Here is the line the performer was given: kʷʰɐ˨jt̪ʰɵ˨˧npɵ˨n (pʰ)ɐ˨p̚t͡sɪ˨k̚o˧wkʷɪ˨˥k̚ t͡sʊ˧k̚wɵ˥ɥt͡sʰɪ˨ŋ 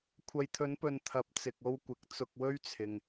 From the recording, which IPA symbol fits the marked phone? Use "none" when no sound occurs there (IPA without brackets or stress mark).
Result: t̪ʰ